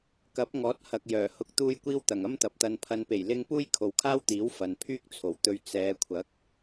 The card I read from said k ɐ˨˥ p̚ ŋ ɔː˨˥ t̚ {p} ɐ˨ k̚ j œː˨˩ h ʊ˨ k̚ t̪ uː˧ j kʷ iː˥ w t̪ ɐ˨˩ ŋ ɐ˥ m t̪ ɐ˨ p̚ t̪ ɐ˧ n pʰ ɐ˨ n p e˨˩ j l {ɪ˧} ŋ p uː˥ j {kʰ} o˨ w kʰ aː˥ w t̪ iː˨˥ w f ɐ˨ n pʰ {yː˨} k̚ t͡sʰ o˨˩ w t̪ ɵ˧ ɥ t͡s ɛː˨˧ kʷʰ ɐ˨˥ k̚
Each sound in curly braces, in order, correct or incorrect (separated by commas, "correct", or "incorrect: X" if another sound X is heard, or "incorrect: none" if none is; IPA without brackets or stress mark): incorrect: h, correct, correct, incorrect: yː˥